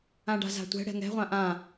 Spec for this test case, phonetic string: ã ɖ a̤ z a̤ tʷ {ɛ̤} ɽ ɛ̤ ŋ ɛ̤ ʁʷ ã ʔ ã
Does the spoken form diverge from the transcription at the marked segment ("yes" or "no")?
no